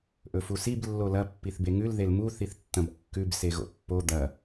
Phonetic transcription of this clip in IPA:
ʔ ɵ f u s i b lː o l ɐ pː i θ b e ŋ ʉ l ð e l m u θ i θ tː ɐ̃ b kː ʉ b s e ɣ o̰ pː o d̪ ɐ

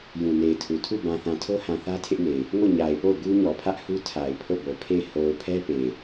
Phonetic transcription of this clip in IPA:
j ũ˨ n e˨ ɪ̯ tʰ u˨ tʰ u˦˨ b ã˨ θ ã˨ tʰ o˦ h ã˨ θ ä˦ tʰ ɪ˦ ʔ n e˨ ɪ̯ | ŋ o˦˨ ɲ a˨ ɪ̯ p o˦˨ ʊ̯ ɡ u˦ ɲ ɔ˨ pʰ ä˦ ʔ h u˦ tʰ a˨ ɪ̯ pʰ o˦˨ b o˨ pʰ e˦˨ ɪ̯ h o˨ ʊ̯ pʰ ɛ˦ p e˨ ɪ̯

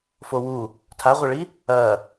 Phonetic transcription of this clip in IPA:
f o w u | tʰ a ʁʷ ɐ ɭ i | ɐ

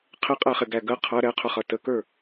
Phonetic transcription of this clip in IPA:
qʰ ɪ qʼ æ χ ɪ ɡ æ ɡ ə qʰ ʌ ɾ ɛ qʰ ʊ χ ʌ t ə k ə˞

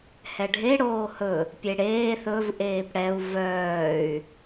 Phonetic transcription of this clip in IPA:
h ɛ ɖʱ e ɽ oː h ɵ | pʲ e ɽ eː θ ɵ v ʔ eː p ɽ ɛ u̯ v œː y̯

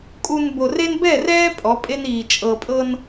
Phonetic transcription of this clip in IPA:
kʼ u˨ n b o˨ r e˦ n b ɛ˦˨ r ɛː˦ pʼ ɔ˨˦ pʼ e˦ n iː˨ t͡ʃʼ ɤ˨ pʼ ɤ˦ n

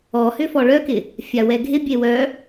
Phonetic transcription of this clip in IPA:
ɔ h ʏ f ɔ ɭ œ k ɪ | fʲ a w ɛ ɡʱ ɪ bʲ e w œ

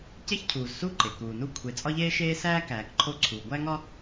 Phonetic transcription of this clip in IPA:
c e˥ ç cʰ uː˩ z s u˥ ǃ e˩ k uː˨ n u˦ kʷʰ e˨ t͡sʼ ɒ˥ ʎ eː˥ ʃ eː˥ s æː˥ k æː˨ k ǃʰ o˦ ǀʰ uː˨ ɡʷ æ˥ ŋ ɒ˥

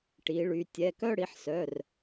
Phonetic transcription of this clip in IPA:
ʈ i˩˧ ɭ y˩˧ tʲ ɛ˩˧˩ k œ˥˧ ɽ i˩˧ ħ s œ˩˧˩ r

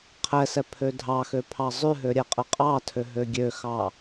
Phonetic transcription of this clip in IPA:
qʰ ɛ s ɛ pʰ ø dʱ ɑ x ø pʰ ɑ zˤ ʉ ɦ ø ɾʲ ɛ qʼ ə qʼ ɑ tʰ ø ɦ ø ɡʲ ø x ɑ

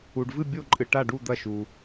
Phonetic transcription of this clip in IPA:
u˨ ɖ v ɨ˥˨ bʲ o˥˨ ǃʼ ɨ˨ ʈ a˥˨ ɖ u˥˨ d̪ ɐ˥˨ ʃ u˨

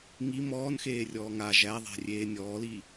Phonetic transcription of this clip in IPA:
ŋ i m ɔː n x eː rʲ ɔː ŋ a ʒ æ ðˤ ɛ̤ rʲ eː nʲ ɔː l i

